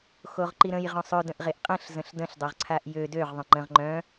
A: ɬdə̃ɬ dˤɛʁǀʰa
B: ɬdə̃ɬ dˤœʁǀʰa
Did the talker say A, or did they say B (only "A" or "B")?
B